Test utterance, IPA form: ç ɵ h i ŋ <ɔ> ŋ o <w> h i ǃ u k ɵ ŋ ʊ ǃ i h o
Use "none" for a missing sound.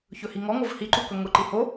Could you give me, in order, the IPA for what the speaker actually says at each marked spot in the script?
ɔ, v

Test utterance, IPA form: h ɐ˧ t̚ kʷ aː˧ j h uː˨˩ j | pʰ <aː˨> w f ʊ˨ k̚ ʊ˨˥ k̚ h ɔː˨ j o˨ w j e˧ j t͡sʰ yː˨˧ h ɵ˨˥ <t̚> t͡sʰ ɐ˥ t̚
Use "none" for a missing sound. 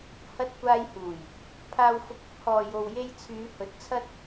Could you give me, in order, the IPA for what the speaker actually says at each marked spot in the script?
aː˨, t̚

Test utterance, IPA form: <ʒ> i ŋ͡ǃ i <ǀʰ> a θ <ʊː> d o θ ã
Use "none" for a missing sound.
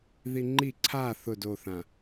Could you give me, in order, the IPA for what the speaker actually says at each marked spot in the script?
ð, ǀʰ, ʊ

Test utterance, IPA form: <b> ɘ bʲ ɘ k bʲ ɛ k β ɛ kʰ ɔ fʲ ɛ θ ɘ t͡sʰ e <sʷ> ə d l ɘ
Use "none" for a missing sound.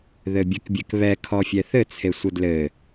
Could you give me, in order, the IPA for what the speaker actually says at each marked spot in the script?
ð, sʷ

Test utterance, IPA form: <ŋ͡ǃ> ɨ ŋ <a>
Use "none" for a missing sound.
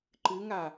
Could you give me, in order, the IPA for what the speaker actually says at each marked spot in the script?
ǃ, a

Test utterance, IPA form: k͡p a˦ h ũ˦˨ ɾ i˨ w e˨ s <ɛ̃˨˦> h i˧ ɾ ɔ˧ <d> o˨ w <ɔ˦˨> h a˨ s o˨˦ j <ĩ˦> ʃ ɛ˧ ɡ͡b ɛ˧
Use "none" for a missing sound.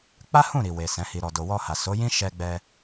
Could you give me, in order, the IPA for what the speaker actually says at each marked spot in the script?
ɛ̃˨˦, d, ɔ˧, ĩ˦

